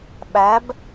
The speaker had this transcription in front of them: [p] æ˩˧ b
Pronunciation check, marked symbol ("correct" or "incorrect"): incorrect